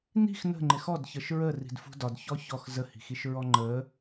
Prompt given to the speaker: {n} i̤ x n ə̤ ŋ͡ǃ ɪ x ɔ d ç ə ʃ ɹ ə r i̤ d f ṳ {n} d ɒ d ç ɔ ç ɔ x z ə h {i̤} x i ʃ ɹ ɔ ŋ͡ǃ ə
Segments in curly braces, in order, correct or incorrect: correct, incorrect: none, correct

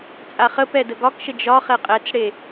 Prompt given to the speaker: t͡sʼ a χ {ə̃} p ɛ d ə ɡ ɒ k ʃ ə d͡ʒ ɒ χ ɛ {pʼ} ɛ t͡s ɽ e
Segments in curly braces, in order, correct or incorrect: incorrect: ə, incorrect: qʼ

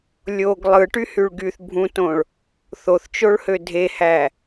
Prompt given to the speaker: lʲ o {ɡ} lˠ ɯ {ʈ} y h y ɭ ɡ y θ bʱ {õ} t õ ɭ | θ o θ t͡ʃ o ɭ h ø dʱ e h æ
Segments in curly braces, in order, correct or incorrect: correct, correct, incorrect: ũ

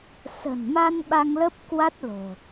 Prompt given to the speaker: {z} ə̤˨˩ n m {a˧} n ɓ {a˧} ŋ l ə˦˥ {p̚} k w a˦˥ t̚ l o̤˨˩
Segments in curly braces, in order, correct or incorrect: incorrect: s, correct, correct, correct

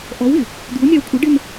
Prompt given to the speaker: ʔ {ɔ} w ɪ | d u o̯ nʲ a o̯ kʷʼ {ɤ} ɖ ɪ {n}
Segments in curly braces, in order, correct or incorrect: correct, correct, correct

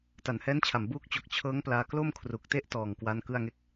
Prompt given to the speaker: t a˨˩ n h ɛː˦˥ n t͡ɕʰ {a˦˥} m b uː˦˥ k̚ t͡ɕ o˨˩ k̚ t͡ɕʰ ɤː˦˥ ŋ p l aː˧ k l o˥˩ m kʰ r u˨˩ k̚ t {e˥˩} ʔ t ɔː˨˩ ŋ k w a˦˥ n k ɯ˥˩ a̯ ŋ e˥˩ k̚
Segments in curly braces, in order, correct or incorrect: incorrect: a˨˩, correct

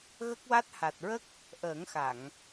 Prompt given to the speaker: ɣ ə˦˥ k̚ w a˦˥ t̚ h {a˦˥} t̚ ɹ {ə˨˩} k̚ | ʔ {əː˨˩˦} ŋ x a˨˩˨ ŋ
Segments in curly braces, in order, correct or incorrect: incorrect: a˨˩, incorrect: ə˦˥, correct

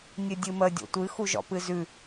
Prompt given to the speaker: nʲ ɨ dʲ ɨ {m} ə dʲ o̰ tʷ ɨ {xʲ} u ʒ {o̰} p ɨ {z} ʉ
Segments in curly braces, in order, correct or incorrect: correct, incorrect: x, incorrect: ɔ̰, correct

